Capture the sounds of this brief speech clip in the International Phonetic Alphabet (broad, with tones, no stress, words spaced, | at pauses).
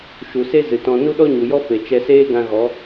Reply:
ʃu˨se˦ zɨ˨tɔ̃˧ nu˦ɗɔ˦ɲu˨jɔ˦ fe˨ t͡ʃɛ˧seː˦ɡã˧ɣɔ˨˦